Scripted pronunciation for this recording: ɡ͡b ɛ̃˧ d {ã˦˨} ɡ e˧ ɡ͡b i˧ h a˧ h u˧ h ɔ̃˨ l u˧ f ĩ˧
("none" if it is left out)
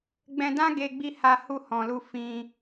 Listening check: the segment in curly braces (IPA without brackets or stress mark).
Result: ã˦